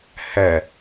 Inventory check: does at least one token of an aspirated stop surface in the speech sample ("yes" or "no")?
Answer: no